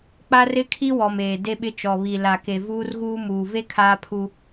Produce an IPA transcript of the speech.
k͡p a˦ r ɪ˦ kʰ i˦ w ɔ˨ m eː˨ d e˦ ɓ ɪ˦ t͡ʃ ɔ˨ β i˨ l a˨ k e˨ v uː˦ r ɣ uː˦ m uː˨ v e˦ kʰ aː˦ pʰ u˦

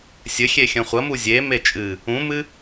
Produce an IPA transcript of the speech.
sʲ ɘ xʲ e xʲ ɐ̃ χʷ ɐ m u zʲ e m e t͡ʃʼ ɨ | ũ m ɨ

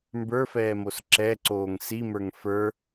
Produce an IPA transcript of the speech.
m b ə˞ f ɛː m o s ǁ ɛ ǀ oː ŋ s i m ə˞ ŋ f ə˞

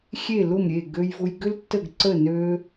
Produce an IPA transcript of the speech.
xʲ e˦˨ l ʊ˦˨ m ɾʲ e˦˨ ɡ ø˦ j v ʊ˦ j ɡ ʏ˦ l tː ə˦˨ ɡ ǀ ə˦˨ n ø˦

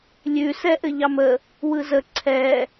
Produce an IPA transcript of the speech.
lʲ ʉ s ɛ ʔ ɘ ʎ ɑ m ə | w ɯ z ə ǀʰ ɛ

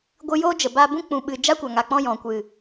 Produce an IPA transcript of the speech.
ɡʷ ɨ˧ j o˦ d͡ʒ ə˨ b a˧ b ũ˦ k͡p ũ˨ ɓ ɨ˨ d͡ʒ a˦ kʷ a˨ ŋ a˨ k͡p ɔ̃˧ j ɔ̃˨ kʷ ɨ˨

